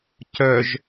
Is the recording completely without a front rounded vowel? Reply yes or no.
no